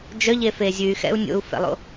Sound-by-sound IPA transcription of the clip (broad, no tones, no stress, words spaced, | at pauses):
d͡ʒœʎefe zʲʉy̯xɛ̰u̯ nʲo̰u̯fɛ̰lˠo̰